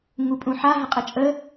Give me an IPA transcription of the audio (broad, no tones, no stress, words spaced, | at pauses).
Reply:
ŋupʼũħa ɦəqʼət͡ʃʼə